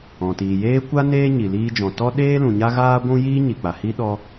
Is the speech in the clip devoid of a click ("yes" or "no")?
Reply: yes